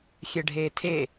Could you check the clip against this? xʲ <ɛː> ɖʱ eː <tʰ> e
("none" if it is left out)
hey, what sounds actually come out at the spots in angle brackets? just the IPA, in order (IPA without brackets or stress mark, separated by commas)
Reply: ɛ, tʰ